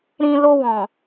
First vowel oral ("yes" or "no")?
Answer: no